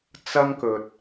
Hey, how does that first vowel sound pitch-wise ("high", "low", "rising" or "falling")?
high